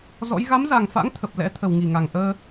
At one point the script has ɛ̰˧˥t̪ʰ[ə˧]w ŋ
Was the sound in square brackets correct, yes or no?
no